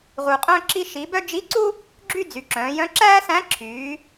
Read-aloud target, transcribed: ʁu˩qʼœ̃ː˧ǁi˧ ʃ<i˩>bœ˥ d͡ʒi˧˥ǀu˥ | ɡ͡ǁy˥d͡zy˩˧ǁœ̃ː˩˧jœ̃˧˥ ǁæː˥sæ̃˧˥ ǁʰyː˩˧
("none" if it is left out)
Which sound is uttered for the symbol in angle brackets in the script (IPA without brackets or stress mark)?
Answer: i˩˧